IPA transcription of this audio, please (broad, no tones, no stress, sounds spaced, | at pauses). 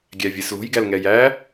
ɡʲ æ vʲ e s l o̤ j ɡ æ l ŋ ɛ j æ